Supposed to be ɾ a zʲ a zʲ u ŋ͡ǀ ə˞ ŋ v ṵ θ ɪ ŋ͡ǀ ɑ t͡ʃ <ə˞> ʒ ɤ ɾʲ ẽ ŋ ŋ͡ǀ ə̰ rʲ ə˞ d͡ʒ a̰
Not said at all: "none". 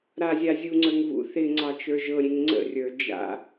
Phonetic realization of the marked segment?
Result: ə˞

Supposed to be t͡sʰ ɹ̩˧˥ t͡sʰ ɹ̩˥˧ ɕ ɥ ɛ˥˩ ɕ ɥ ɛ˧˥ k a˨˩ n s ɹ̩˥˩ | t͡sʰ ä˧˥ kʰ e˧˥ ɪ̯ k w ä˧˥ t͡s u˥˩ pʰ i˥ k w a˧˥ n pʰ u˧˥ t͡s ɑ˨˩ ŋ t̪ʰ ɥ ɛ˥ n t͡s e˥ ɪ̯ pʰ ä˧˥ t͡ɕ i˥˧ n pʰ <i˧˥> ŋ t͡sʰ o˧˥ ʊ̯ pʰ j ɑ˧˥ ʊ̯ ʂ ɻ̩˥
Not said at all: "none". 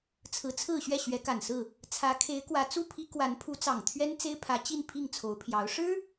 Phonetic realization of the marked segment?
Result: i˥˩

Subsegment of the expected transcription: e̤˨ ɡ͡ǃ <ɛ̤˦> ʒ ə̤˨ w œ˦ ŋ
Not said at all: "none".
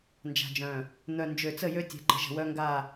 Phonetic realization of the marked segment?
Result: ə̤˦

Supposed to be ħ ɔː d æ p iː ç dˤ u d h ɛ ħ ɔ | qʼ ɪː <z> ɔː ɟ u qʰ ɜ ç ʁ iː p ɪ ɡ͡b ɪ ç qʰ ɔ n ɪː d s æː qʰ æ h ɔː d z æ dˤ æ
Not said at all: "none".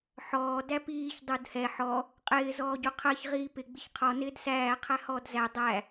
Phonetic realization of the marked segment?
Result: z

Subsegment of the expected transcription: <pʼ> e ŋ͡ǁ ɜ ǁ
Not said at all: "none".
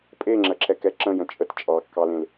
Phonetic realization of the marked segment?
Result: pʼ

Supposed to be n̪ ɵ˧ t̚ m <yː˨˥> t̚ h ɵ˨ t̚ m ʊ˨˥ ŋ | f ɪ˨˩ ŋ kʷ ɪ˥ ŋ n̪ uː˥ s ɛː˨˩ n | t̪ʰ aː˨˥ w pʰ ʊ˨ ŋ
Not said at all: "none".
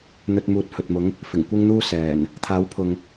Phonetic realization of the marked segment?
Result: uː˨˥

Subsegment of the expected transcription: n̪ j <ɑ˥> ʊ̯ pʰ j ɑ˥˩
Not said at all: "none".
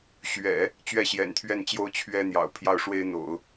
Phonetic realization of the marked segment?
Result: ɑ̰˨˩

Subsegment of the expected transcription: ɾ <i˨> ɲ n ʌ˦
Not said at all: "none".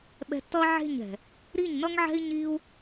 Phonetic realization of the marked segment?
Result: i˦˨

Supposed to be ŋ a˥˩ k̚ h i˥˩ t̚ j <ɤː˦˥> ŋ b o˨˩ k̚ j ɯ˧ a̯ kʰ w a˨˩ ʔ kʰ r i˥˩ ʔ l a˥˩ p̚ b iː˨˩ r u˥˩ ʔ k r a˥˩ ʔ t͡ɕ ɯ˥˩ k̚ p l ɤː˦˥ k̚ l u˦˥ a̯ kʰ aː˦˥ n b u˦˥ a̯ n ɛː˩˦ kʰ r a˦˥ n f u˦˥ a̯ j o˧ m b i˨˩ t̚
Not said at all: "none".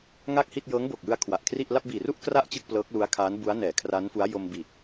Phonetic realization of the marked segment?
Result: ɤː˦˥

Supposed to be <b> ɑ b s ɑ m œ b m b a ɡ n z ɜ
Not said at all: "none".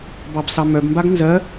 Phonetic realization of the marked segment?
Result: b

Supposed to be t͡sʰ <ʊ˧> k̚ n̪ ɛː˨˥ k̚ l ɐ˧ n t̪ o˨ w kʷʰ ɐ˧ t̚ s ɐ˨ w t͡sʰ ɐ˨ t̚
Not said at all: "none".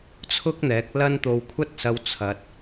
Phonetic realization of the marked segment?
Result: ʊ˥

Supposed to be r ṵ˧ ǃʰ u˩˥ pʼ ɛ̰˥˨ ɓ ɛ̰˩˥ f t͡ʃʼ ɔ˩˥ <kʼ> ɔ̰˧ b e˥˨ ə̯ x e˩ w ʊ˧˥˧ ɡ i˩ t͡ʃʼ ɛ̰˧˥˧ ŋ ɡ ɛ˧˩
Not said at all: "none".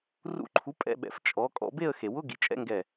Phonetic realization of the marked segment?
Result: kʼ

